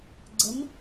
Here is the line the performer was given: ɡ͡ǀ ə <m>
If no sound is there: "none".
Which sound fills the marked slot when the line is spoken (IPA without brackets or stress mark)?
m